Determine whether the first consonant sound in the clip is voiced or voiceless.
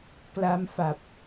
voiceless